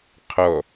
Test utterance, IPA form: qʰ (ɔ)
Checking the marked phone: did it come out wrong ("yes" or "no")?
no